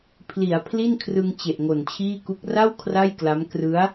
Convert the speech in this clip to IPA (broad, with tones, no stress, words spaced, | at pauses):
pʰli˩˦a̯ pʰli˥˩nkʰrɯ˧ŋ t͡ɕe˨˩ʔŋo˨˩nt͡ɕʰiː˥˩ku˦˥k̚ ra˥˩w kʰra˥˩jkla˦˥m krɯ˦˥a̯